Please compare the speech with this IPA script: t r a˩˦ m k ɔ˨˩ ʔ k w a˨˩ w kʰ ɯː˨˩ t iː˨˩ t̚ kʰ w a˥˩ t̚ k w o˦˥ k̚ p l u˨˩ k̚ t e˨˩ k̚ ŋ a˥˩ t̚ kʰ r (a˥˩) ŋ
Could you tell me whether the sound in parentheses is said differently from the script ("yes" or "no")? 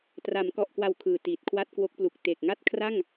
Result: no